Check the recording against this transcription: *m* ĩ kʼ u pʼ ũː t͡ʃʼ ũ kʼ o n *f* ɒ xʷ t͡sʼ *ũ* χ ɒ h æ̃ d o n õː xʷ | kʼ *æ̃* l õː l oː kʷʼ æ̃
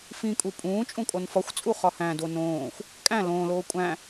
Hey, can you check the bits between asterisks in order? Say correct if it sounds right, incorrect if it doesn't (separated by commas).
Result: incorrect, correct, incorrect, correct